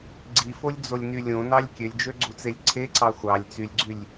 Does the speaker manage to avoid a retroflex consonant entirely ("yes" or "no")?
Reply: yes